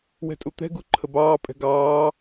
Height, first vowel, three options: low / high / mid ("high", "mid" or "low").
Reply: mid